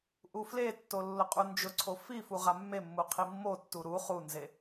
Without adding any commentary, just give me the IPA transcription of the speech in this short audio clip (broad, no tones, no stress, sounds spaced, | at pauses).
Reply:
ʔ u f l e tː o lː ʊ qʼ u n d͡ʒ ʊ ǀʰ o f i f u ʁ a mː e mː u qʰ i mː o tː u ɾ u χ u n z e